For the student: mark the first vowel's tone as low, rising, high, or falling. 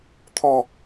falling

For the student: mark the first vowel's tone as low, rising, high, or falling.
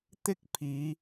high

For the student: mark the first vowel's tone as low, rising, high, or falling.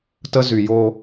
high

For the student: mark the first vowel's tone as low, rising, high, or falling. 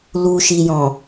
low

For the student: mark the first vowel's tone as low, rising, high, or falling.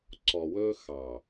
low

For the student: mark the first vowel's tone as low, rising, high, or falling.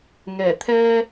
low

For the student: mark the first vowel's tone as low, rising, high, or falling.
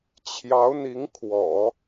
rising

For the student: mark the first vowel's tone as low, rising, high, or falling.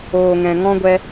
low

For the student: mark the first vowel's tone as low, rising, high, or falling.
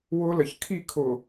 high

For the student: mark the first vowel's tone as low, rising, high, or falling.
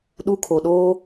high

